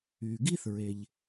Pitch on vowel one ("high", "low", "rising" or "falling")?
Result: low